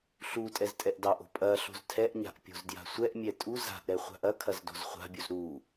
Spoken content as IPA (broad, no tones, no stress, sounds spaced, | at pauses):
ɬ u tʼ ɛ z tʼ ɛ ʔ d ɑ ʔ o̤ pʼ ɐ ɬ o̤ z tʰ ɛ ʔ ɲ a̤ ʔ pʲ o̤ z d j a̤ sʷ ɛ ʔ mʲ ɛ tʼ u z a̤ ʔ ɾ ɛ χʷ a̤ ʔ ɐ kʰ ɐ z d o̤ z χʷ a̤ bʲ u z ɾ u